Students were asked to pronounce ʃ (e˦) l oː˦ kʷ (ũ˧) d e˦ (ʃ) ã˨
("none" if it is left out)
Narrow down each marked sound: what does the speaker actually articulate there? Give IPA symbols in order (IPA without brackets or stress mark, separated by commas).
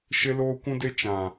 e˦, ũ˦, t͡ʃ